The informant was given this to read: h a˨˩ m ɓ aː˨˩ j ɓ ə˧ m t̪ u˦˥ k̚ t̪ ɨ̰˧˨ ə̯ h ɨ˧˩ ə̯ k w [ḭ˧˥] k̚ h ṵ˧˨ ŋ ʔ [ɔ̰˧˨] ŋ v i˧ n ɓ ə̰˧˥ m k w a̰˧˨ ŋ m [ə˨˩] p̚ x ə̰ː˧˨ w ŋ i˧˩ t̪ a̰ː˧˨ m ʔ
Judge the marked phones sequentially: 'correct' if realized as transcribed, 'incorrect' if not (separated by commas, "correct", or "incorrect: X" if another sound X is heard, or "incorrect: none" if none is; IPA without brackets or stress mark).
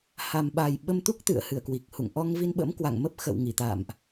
incorrect: i˨˩, incorrect: ɔ˧, incorrect: ə˦˥